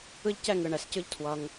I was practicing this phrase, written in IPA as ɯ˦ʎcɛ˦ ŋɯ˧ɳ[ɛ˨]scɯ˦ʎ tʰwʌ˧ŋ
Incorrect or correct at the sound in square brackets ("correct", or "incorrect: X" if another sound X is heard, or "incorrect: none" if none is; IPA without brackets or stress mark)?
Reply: incorrect: ɛ˧